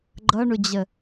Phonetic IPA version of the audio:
ɡ͡ǃʌɳʊd͡ʑə

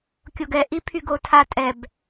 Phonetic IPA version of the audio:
kʲoɡɛ ʔipʰyɡotʰa tʼɛb

